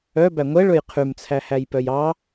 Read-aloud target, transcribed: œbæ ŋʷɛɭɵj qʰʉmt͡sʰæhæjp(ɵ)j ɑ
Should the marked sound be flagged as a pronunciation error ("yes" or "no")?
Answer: yes